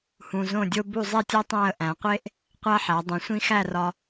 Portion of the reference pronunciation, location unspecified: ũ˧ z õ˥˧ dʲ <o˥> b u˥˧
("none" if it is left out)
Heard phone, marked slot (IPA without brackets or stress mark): o˥